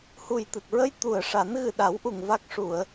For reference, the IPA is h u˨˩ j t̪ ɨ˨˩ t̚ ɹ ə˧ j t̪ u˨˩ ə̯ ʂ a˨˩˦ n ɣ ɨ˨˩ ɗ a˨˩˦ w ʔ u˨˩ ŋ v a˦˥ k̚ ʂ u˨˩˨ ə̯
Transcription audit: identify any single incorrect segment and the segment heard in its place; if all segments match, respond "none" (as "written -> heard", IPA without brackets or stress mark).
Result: none